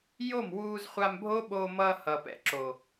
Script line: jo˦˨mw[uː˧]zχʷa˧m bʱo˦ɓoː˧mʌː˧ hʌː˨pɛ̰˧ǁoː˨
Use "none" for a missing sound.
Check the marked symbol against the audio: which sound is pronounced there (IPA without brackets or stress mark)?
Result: uː˧